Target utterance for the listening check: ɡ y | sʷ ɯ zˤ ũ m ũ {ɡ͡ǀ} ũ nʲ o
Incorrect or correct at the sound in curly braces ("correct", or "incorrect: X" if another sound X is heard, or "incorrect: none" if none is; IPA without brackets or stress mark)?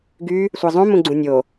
correct